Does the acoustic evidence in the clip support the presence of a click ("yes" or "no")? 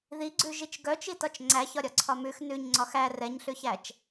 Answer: yes